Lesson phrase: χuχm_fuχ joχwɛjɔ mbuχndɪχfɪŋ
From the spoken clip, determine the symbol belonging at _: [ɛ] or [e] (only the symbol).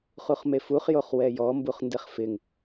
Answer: e